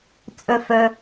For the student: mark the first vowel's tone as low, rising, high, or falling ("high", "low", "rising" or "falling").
low